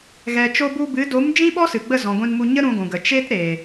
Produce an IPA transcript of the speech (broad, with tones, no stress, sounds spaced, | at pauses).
ɣ ɛ˨ t͡ʃ o˧ b u˧ b ɨ˨˦ d o˨˦ m d͡ʒ ĩ˦ ɓ ɔ˦ s ɨ˨ ɡ͡b ə˦˨ z ɔ̃˨ ɡʷ ĩ˧ n m u˧ ɲ ə˦ ɾ ũ˧ ɡʷ ũ˨ ɡ ə˨ t͡ʃ e˦ t ɾ e˨